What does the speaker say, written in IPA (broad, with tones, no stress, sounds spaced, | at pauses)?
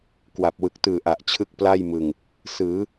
k w a˨˩ p̚ w ɯ˨˩ k̚ t ɯː˨˩ ʔ a˨˩ ʔ t͡ɕʰ ɯ˦˥ k̚ p l a˥˩ j m ɯ˨˩ ŋ | s ɯː˩˦